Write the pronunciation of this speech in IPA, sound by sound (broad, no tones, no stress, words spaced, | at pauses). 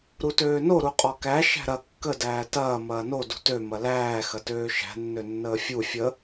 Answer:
ɾutøːno ɾuqʼɔkæ ʃæ̤ɾɐ kːə dæːtɐː mɐːno dṳtø mɐlæː xɐtøːʃæ̤ nːønːəːfʲu fʲə